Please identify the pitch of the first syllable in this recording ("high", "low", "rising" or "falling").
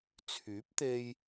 rising